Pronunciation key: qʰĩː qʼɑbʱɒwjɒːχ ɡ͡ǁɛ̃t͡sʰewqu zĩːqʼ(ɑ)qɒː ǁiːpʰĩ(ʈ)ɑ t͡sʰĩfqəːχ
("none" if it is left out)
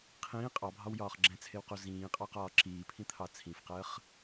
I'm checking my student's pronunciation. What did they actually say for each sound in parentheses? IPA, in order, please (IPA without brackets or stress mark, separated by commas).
ɑ, t̪ʰ